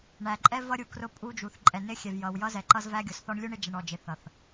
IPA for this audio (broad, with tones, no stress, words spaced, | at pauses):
ɳæ˨ǃʼɛ˦ vʌ˦ɾʲu˨krʊ˦pʼu˦ d͡ʒu˨θ ǃʼɛ˨nɪ˦xʲɛ˨v jʌ˨wjʌ˦zɛ˨ ǃʌ˦zvæ˦ɡʲʊ˨s θɔ˦ɳlʲu˦ɳɪ˦ d͡ʒɛ˨ɳɔ˨d͡ʒɪ˨θʌ˨θ